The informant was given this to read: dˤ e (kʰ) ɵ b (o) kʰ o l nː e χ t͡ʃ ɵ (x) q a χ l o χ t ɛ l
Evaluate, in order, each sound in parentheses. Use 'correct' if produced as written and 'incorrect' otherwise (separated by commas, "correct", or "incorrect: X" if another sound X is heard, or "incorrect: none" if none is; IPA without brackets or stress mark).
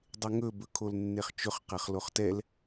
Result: incorrect: ŋ, incorrect: ɵ, incorrect: χ